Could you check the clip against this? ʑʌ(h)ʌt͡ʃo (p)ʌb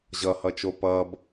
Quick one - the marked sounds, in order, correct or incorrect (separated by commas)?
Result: correct, correct